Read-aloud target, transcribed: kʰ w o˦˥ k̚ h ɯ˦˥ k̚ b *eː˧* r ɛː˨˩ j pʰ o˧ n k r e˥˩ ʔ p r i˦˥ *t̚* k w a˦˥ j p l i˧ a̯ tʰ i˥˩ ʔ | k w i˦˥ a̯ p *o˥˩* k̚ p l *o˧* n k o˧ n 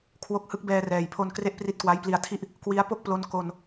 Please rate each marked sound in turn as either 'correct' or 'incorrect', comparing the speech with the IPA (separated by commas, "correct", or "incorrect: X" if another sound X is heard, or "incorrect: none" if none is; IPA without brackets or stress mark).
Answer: incorrect: ɛː˧, correct, correct, correct